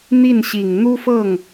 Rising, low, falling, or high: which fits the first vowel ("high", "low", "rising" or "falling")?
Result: falling